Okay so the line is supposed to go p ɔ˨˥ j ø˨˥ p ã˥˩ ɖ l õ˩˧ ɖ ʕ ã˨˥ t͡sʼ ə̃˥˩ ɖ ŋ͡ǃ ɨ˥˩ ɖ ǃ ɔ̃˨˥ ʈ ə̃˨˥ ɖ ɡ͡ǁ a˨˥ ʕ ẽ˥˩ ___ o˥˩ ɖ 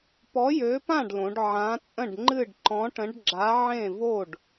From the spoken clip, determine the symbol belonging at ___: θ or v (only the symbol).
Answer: v